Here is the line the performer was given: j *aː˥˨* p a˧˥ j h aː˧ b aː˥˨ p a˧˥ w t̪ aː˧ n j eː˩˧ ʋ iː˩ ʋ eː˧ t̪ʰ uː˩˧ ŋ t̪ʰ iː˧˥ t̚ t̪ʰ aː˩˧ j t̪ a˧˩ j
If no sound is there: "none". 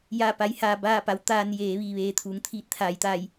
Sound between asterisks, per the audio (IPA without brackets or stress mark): aː˥˨